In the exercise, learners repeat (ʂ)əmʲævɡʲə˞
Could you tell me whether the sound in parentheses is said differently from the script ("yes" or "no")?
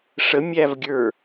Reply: no